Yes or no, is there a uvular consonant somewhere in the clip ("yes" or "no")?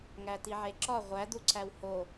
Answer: yes